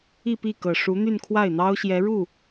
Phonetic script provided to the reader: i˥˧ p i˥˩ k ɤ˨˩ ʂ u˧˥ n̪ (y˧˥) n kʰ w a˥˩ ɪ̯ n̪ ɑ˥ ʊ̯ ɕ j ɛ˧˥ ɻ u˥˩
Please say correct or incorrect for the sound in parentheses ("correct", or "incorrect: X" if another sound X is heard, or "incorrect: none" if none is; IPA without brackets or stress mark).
incorrect: y˥˧